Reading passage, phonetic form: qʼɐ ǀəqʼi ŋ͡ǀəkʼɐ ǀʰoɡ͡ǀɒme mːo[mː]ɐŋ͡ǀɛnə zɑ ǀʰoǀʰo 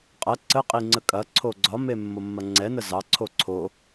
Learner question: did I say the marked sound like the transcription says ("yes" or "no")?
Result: yes